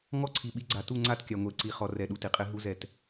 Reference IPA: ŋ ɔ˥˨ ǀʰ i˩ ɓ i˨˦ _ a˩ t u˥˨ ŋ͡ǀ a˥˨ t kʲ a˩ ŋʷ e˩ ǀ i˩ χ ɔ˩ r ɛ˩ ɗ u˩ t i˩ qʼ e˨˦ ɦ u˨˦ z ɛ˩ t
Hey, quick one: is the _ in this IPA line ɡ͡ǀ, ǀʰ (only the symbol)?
ɡ͡ǀ